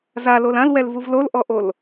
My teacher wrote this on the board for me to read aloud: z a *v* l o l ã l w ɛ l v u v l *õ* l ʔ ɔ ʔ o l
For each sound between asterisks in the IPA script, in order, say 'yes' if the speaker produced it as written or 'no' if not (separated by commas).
no, no